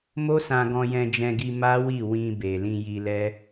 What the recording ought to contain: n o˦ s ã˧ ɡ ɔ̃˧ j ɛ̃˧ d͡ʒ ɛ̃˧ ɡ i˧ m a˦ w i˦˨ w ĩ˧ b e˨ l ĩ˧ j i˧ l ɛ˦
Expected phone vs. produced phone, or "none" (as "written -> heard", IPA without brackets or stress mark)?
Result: n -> m